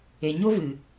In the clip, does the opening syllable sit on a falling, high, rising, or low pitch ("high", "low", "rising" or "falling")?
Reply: low